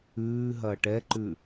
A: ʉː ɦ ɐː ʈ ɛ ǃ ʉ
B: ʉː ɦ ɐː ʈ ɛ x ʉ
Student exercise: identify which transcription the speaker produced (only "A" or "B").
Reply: A